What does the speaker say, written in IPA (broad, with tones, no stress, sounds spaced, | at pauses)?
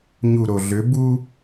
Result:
ɲ u˨ ɾ o˨ ɮ ø˨˦ b u˦